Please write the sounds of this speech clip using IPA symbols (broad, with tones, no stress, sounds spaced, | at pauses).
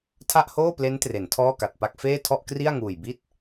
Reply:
tʰ a˥˩ ʔ h oː˥˩ p l e˦˥ n t r e˩˦ n tʰ ɔː˥˩ k a˨˩ t̚ p a˥˩ k̚ f eː˥˩ tʰ ɔ˥˩ ʔ k r i˥˩ a̯ ŋ uː˨˩ j b i˥˩ t̚